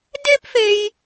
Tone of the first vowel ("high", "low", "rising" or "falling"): high